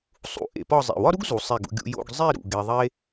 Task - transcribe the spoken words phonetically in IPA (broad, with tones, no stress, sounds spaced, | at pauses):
sˤ ṵ˧ ʔ ḛ˧ p ɒ˥˧ zˤ ḛ˧˩ w ɒ˥ ɾ u˥ ɡ z u˩˧ sˤ e˥˧ ɡ ṵ˥ ɡʲ ṵ˧ j o̰˥˧ ɡ zˤ i˥˧ ɾ ṵ˧˩ ɡ e˧ ðˤ e˥